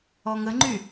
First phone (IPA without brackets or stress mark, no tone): ɔ